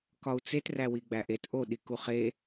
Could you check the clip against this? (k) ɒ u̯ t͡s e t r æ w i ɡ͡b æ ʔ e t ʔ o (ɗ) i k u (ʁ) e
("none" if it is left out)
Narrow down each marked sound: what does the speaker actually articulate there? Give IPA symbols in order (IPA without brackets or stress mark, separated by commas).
k, ɗ, χ